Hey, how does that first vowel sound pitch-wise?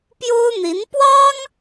high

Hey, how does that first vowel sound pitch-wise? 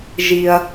low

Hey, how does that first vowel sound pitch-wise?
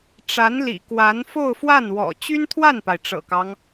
rising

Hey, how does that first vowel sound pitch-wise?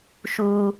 low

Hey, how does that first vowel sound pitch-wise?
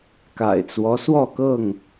low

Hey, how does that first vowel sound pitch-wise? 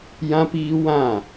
high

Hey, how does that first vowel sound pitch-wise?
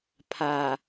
low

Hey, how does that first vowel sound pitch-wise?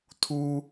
high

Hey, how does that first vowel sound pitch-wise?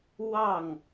falling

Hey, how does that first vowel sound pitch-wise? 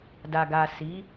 low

